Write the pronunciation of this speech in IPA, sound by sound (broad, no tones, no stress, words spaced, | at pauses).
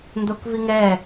ndokviŋɛ